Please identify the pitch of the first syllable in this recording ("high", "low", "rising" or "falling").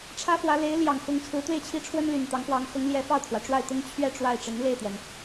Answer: high